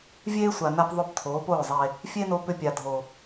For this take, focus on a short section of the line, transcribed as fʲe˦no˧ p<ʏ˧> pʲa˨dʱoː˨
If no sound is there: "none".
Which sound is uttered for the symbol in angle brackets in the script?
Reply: ʏ˧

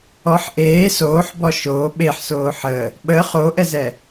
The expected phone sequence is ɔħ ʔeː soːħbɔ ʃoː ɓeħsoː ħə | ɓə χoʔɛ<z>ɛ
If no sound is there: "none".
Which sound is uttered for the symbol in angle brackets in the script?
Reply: z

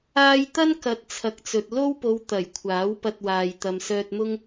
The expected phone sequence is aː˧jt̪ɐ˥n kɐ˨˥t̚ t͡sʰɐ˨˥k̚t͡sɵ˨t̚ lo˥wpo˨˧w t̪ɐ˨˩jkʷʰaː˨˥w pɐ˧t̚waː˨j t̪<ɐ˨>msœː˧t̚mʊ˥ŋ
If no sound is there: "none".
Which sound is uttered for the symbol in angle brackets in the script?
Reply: ɐ˨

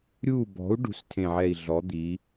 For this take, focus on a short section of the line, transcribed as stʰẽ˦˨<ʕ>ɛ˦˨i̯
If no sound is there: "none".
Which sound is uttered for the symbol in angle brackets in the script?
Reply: ʕ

